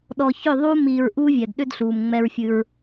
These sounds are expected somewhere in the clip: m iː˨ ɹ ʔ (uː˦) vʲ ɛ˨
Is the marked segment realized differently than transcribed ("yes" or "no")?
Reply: no